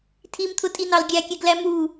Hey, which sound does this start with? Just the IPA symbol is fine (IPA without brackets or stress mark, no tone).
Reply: tʰ